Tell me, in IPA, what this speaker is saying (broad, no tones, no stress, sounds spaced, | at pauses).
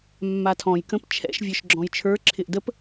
mː a tʰ ɔ̃ j k ə̃ p t͡ʃʰ ɛ̰ ʃ vʲ ə˞ ʃ ɡ͡ǁ ɔ̃ j t͡ʃʰ ə˞ ǁʰ ɪ ʔ d ə p